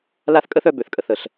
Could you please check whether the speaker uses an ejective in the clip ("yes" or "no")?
yes